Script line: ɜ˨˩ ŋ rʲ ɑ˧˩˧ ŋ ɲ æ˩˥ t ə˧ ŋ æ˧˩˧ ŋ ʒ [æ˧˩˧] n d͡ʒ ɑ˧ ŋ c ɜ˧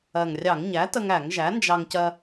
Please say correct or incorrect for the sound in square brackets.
incorrect